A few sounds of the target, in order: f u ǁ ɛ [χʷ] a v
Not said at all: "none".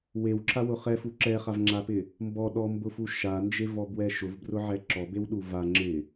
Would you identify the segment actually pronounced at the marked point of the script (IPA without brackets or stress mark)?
χ